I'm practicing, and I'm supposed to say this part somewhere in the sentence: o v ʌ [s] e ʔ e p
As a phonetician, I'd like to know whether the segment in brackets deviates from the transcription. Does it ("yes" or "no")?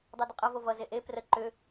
yes